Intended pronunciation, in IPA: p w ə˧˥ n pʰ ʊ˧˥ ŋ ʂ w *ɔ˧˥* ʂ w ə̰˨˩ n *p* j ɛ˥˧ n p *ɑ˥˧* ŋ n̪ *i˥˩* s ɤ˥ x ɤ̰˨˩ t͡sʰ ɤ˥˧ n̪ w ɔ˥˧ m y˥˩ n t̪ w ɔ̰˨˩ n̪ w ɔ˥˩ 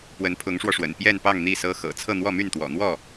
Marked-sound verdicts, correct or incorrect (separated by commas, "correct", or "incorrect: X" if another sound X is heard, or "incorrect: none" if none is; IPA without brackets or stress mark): incorrect: ɔ˧, correct, correct, correct